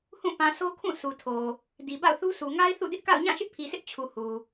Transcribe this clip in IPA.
h ũ˦˨ p ã˨ s o˦ kʰ ũ˦˨ sʰ u˨ tʰ o˨ | d i˨ b a̰˦˨ ʊ̯ θ u˦ sʰ u˨ ŋ a˦ ɪ̯ θ ṵ˦˨ d ɪ˦ ʔ k a̰˦˨ ʊ̯ ɲ ã˦˨ ʃ ɪ˦ ʔ pʰ i˨ s ɪ˦ ʔ t͡ɕʰ u˨ h u˨

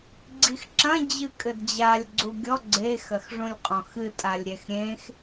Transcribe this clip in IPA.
ɡ͡ǀ i x ǁ ɐ̃ d͡ʑ ɨ kʼ ɘ d d͡ʑ a lʲ ɡ͡ǀ u ɡʲ ɔ ɡ͡ǀ e x ɐ x ʐ ũ lʲ qʼ ɔ̃ x ɨ tʼ a lʲ ɾʲ ɛ x ɾʲ ẽ x

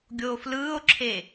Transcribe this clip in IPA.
ɡʲ oː f l ɯː o̯ ǁʰ e

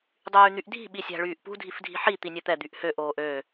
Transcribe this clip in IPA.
dˤ yː n̪ y ʔ dʱ i̤ ɓ i sʲ æ̤ ɭ yː ʔ p ṳ dʱ i f dʱ i̤ ħ i t̪ i nʲ ɛ t̪ ɛ d̪ y ʔ h ø ʔ oː ʔ ø

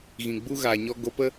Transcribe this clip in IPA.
ɣ ĩ˨ ɡ͡b u˦ ɣ aː˨ ɲ ɔ˧ ɡ o˧ p ə˦

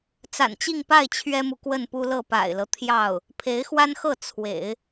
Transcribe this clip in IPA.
t͡s a̰˨˩ n t͡ɕ i˥˧ ŋ p a˥˩ ɪ̯ t͡ɕʰ ɥ ɛ˥ m u˨ k w ə˥˩ n p u˥ l ɤ˥˩ p a̰˨˩ ɪ̯ l ɤ˦ t̪ʰ j ɑ˥˩ ʊ̯ | pʰ e˧˥ ɪ̯ x w a˥ n x ɤ˥˩ t͡sʰ w ḛ˨˩˦ ɪ̯

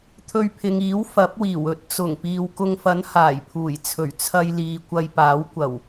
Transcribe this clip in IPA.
t̪ʰ ɵ˧ ɥ pʰ ɪ˨ ŋ iː˨˥ w f ɐ˨˥ p̚ w iː˨˩ w ɵ˨˥ t̚ t͡s ʊ˨˩ ŋ p iː˨ w k ʊ˧ ŋ f ɐ˨˥ n h aː˨˩ j pʰ uː˨˩ j t͡sʰ ɵ˨˩ ɥ t͡sʰ ɐ˧ j l iː˨ kʷ ɐ˧ j p aː˨˥ w kʷ ɐ˨˩ w

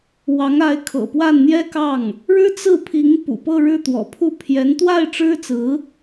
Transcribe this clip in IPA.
w ɑ˧˥ ŋ a˧˥ ɪ̯ kʰ ɤ̰˨˩ p w a˥˩ n n̪ j ɛ˥ k ɑ˥˩ ŋ | ɻ ɻ̩˥ t͡s ɹ̩˥˩ pʰ i˧˥ ŋ p ṵ˨˩ p ɤ˥˧ ɻ ɻ̩˥˩ t̪ w ɔ̰˨˩ pʰ u˥˩ pʰ j ɛ˧˥ n t̪ w a˥˩ ɪ̯ ʈ͡ʂ ɻ̩˥ t͡s ɹ̩˧˥

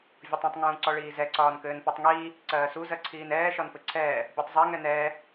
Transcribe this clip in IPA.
vʲ ɔ tˤ ũ tˤ ŋ ũː ǀ ɔ ɭ iː z ɛ ǀ ɒː n k ɘː n p ɒ tˤ ŋ iː | ǀ ɜː s u z ɜ ǀʰ iː n ɛː ʃ ɒ n p ɘ ǀʰ ɛː | bʲ ɔ tˤ zˤ ɛ ŋ ɛ n ɛː

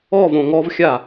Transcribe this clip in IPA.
ɔ v õ ŋ ɔ v xʲ a

